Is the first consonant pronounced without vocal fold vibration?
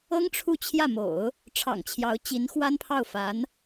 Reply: no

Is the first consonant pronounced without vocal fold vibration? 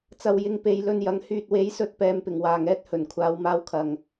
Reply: yes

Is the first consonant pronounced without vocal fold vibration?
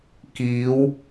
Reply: yes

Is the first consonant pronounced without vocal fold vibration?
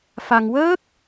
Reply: yes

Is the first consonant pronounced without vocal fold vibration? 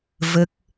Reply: no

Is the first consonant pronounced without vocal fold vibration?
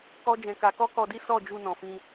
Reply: yes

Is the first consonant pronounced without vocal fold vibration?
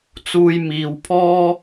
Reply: yes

